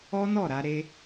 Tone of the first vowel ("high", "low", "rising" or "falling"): high